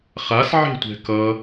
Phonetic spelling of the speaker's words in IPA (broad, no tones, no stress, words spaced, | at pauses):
χasʕe̤tʷɛ̤ kʌ